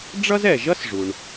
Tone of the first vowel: high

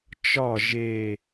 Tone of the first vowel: falling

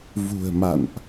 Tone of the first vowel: low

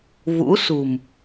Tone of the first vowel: rising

